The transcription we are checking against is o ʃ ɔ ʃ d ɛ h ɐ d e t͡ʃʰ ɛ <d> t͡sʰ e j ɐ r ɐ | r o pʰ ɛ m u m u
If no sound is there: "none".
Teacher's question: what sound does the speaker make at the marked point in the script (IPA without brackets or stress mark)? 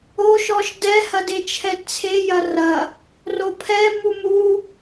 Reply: d